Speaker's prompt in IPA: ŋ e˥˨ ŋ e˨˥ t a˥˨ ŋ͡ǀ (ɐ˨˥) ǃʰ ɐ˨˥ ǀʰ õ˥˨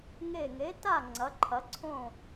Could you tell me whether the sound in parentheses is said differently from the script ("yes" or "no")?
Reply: no